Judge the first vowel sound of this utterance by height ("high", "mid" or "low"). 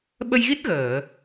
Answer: mid